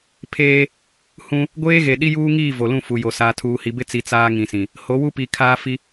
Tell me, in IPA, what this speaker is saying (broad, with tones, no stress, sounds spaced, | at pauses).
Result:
pʰ eː˦ | h ũ˦ | ɡʷ eː˦ ɣ e˨ ɗ i˦ j uː˦ ŋ iː˦˨ v o˨ l ũ˦˨ f u˨ j o˨ s aː˨ tʰ uː˨ h i˨ b ɪ˦ t͡s i˨ t͡s aː˦ ŋ ĩ˨ s ĩ˨ | h o˨˦ w u˦ p i˨ kʰ aː˦ f i˦